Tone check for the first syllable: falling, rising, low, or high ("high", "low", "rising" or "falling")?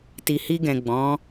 low